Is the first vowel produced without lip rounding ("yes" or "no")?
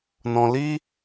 no